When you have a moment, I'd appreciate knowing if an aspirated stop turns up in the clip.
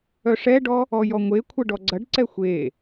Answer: yes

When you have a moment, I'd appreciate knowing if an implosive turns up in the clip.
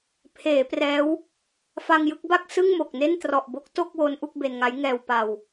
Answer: no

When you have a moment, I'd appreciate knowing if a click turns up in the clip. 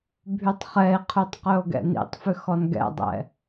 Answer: no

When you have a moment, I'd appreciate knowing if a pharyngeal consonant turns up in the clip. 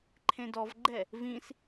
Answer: no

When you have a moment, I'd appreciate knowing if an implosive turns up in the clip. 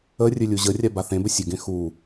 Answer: no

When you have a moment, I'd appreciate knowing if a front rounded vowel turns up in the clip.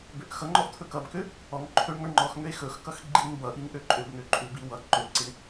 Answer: yes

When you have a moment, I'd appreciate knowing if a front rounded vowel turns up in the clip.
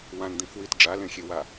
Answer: no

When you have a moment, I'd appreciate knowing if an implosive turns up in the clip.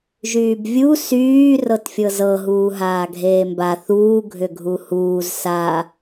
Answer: no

